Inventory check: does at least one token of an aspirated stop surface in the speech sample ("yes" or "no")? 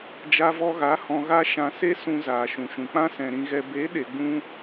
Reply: no